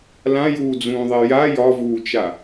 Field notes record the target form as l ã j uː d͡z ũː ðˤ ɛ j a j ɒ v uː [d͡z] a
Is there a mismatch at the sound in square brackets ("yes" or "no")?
yes